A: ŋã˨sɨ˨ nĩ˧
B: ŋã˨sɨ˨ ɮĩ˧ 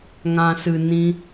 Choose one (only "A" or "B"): A